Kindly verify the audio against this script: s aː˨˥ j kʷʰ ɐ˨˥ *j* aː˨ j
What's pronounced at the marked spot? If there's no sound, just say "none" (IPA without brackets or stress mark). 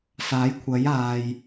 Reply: j